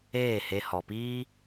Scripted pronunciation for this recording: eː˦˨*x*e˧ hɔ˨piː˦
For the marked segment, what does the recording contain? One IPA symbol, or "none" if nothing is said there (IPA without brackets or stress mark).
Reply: h